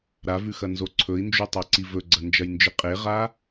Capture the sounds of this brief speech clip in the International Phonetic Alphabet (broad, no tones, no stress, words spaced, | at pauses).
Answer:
ɾavʉxɐnzo ǀʰɵi̯nd͡ʒutˤaǀi vɵɡ͡ǀɐnd͡ʒɐjnd͡ʒɨ qʼeʁa